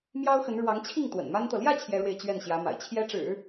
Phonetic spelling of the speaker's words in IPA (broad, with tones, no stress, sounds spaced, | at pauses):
m j ɑ˥ ʊ̯ x ə˧˥ n ɻ w ɑ˧˥ ŋ t͡ɕʰ i˥˩ ŋ t̪ w ə̰˨˩ n m a˥ n t̪ ɤ˨ l j ä˥˩ t͡ɕʰ j ɛ˥ ɻ w e˥˧ ɪ̯ t͡ɕ ɥ ɛ˥˩ n ɕ j ä˧˥ m a̰˨˩ ɪ̯ t͡ɕʰ j ɛ˥ ʈ͡ʂ ɻ̩˨˩˦